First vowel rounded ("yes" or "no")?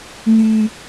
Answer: yes